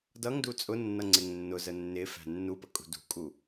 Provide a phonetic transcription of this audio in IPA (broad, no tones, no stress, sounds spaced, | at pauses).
d ʌ ŋ d u t͡sʼ ʊ nː ʌ ŋ͡ǀ ɪ ŋ nː ʊ z ə nː ɪ f æ̤ nː u p ə kʼ ṳ d ṳ kʼ u